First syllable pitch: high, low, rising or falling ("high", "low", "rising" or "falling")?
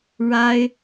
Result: high